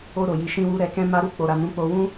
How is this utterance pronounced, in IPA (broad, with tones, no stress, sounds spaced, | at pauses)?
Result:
o˧ ɾ o˨ j i˨ ʃ ĩ˧ w u˧ ɾ ɛ˧ k ɛ̃˦ m a˦ ɾ u˧ k͡p o˨ ɾ a˨ n ũ˨˦ k͡p o˧ w ũ˦